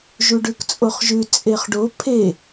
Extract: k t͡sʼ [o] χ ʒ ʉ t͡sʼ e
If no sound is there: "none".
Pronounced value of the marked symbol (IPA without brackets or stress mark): o